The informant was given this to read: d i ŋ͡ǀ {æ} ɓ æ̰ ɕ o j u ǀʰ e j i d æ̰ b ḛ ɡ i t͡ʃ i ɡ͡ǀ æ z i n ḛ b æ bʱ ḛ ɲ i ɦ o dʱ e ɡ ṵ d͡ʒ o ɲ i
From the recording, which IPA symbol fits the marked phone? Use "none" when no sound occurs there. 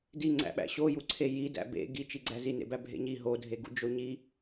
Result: æ̰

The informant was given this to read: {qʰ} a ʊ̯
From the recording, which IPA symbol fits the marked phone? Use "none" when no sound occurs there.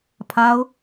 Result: pʰ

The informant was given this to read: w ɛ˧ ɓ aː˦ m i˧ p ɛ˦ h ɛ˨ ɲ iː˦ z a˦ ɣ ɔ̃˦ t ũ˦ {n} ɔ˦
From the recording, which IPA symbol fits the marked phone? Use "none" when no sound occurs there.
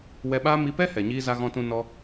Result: n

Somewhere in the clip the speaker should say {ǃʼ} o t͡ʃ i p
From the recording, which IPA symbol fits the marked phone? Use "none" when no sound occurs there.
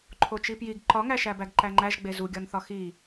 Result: ǃʰ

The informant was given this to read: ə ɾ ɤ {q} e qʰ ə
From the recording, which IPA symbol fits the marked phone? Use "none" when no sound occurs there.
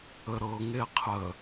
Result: ŋ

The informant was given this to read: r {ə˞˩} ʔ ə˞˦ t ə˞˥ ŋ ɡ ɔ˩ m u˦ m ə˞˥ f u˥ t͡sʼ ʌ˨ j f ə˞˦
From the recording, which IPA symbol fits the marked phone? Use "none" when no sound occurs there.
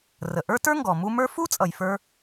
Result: ə˩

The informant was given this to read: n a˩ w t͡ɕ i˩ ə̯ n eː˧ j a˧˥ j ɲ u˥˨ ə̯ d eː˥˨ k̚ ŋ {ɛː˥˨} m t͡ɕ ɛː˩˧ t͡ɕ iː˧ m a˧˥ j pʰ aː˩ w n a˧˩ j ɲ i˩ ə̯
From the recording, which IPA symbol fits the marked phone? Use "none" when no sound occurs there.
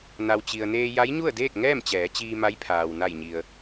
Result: ɛː˥˨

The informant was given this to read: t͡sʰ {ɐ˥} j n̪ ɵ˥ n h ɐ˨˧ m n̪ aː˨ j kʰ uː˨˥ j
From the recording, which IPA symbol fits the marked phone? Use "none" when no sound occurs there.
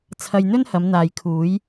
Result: ɐ˧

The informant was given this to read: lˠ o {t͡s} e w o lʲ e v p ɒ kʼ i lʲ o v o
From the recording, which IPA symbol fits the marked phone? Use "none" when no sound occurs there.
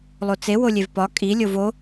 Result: t͡s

